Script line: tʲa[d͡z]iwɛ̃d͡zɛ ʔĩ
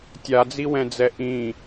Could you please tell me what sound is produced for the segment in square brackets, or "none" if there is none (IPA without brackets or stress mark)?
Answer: d͡z